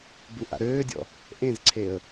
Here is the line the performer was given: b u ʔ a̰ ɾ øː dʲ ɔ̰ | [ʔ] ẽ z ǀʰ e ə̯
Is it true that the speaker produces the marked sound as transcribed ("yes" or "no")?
yes